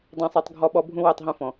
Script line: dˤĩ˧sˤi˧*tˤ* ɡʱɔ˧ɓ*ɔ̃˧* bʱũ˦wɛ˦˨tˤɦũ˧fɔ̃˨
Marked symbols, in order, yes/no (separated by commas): yes, no